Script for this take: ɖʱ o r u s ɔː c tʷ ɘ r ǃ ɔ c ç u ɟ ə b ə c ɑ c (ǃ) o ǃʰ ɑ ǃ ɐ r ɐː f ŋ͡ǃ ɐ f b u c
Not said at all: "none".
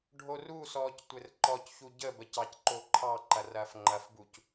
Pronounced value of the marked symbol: ǃ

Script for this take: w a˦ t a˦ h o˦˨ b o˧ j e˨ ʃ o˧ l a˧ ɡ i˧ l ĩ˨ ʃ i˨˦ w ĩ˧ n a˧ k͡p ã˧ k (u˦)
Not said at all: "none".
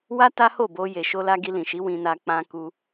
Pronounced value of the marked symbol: u˧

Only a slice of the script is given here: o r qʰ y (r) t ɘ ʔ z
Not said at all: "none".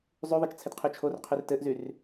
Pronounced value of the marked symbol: r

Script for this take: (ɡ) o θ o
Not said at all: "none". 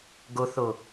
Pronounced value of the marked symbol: ɡ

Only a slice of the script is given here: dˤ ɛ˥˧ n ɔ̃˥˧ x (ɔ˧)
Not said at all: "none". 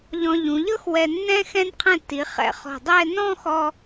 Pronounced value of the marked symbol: ɔ˧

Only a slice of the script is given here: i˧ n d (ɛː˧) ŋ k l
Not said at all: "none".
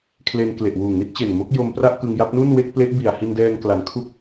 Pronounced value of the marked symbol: ɛː˧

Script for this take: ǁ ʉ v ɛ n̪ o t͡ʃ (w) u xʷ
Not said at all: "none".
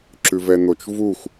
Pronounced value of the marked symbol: v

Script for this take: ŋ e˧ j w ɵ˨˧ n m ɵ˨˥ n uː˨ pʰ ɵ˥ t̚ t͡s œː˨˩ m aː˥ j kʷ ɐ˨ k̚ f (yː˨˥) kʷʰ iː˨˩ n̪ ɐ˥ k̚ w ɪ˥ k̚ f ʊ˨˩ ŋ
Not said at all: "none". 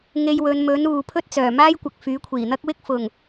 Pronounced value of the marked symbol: yː˨˥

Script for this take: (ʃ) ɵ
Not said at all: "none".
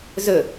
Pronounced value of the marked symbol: z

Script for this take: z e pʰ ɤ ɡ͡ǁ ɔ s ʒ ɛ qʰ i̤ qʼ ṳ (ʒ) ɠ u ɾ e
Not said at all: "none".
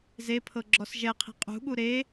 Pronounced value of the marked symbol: none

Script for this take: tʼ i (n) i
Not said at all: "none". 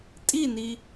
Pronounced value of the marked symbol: n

